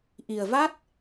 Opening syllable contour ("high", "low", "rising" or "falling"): low